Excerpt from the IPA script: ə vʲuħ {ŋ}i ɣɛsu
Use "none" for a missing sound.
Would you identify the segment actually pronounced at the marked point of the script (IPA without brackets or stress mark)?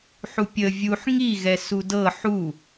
ŋ